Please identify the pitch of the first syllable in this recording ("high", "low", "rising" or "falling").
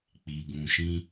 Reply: low